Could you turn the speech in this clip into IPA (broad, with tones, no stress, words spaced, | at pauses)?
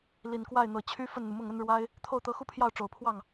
li˨˩nkwa˥˩ɪ̯ n̪ɤ˨˩t͡ɕʰy˥ fə˥˩nn̪u˩mʊ˥˩ŋə˥n ɻwa˥ɪ̯ | t̪ʰo˥˩ʊ̯t̪ɤ˧˥xu˥pʰjɑ˥˩ʊ̯ ʈ͡ʂo˨˩ʊ̯pʰwɑ˥˩ŋ